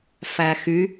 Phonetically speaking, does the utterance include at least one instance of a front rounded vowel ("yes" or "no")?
yes